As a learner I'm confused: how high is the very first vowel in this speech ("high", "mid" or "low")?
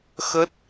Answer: mid